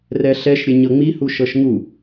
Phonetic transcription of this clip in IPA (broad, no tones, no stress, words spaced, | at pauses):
rɛɬɛʃɾʲɘ ɲɤŋ͡mihu ʃɤʃŋu